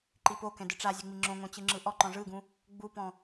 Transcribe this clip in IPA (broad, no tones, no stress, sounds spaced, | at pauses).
ǃ i p o k ɛ̃ d ɯ ʈ͡ʂ a zʲ ɯ ŋ͡m i ŋ͡ǁ õ ŋ õ t͡ɕ ɯ ŋ͡ǁ ɯ ʔ ɔ ǃ ɔ̃ ʐ ɯ ɡ ũ | ɡ͡b u p ɔ̃